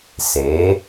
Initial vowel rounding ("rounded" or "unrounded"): unrounded